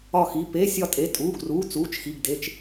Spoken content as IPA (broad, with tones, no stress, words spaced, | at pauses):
ɒ˧˩xi˩˧˩ pe˩˧˩ sʲɒ˧˩tʼe˩˧˩tʼuː˩˧˩ɡruː˩˧˩ t͡suː˩˧˩t͡ʃxi˩˧˩ɡde˩˧˩t͡ʃ